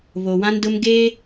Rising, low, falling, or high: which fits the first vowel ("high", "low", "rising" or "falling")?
low